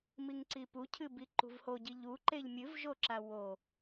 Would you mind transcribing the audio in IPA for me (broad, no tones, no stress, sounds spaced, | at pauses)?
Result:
m i ŋ ǀ i p u cʰ ɨ b i ǃ ṳ v h o ɟ i ʎ u ǃ e ʎ mʲ ɨ v ʒ o ǁ a w o